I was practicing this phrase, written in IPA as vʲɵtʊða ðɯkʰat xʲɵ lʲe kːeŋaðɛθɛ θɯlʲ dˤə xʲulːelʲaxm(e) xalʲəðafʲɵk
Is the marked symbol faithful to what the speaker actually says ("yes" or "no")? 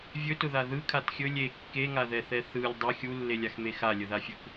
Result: yes